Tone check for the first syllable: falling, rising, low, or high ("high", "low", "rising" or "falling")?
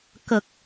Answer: low